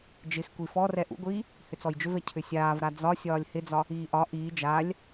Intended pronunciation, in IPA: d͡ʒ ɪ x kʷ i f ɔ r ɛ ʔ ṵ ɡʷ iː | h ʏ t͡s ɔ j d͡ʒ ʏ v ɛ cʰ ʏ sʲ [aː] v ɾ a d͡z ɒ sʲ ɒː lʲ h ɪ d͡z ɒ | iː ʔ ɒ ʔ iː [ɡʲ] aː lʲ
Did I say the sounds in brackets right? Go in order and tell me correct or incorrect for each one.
correct, incorrect

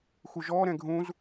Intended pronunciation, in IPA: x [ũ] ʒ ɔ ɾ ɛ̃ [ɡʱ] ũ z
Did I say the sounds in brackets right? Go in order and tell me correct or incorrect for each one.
incorrect, correct

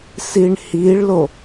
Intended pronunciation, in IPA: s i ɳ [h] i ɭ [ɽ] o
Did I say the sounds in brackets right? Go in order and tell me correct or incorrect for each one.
correct, incorrect

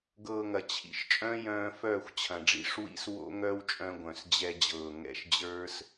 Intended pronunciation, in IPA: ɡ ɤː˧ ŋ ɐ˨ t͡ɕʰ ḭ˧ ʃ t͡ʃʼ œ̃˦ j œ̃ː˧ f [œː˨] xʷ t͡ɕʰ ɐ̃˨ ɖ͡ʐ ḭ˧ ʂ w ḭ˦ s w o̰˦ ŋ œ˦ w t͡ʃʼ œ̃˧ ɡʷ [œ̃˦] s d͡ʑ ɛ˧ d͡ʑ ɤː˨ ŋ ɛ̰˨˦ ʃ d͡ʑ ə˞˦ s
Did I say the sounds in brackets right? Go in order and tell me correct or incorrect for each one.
incorrect, incorrect

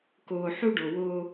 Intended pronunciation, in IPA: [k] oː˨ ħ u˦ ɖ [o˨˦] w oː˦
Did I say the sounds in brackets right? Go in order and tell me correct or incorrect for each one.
correct, incorrect

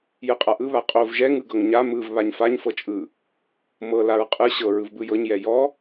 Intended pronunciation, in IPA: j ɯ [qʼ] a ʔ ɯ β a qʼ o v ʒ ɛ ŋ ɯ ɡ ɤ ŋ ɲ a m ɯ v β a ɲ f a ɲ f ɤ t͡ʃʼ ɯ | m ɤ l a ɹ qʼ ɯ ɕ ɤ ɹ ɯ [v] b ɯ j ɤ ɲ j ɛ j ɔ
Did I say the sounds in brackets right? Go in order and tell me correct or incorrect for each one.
correct, correct

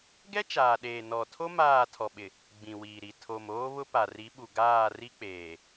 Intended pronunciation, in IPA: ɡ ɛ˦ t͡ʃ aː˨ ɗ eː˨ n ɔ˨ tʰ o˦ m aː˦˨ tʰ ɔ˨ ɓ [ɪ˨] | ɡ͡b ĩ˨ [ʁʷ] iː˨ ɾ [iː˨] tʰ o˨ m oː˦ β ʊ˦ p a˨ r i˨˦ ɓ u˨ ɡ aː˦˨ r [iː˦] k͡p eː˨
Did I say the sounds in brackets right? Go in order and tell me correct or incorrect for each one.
correct, incorrect, incorrect, incorrect

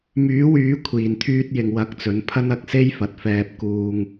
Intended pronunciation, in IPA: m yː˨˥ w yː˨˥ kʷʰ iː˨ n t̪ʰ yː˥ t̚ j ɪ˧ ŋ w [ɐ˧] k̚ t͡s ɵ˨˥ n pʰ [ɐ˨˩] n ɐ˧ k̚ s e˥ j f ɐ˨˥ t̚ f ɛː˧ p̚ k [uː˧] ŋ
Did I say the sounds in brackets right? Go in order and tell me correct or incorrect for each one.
correct, incorrect, correct

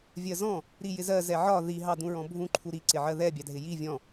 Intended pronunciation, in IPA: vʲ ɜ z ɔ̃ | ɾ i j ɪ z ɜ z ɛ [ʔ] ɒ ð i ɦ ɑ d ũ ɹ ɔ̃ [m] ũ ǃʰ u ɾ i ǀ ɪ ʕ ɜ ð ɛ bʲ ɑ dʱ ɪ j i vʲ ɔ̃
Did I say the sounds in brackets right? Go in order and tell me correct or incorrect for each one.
incorrect, incorrect

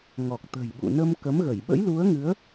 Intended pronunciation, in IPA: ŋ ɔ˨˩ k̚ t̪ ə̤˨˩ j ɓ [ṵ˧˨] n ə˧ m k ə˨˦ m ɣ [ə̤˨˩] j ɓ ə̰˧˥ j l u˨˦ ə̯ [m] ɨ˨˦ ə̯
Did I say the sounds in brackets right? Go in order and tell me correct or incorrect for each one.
correct, incorrect, incorrect

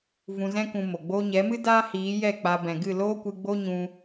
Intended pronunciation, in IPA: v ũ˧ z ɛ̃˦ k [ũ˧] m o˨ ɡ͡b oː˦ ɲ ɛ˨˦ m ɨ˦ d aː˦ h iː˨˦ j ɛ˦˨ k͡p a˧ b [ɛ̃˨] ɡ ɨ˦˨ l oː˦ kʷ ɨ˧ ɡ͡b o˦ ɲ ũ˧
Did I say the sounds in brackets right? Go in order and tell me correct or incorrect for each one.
correct, correct

